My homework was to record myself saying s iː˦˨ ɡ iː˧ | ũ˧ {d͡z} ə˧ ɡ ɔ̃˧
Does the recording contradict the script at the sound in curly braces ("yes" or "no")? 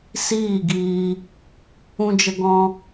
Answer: yes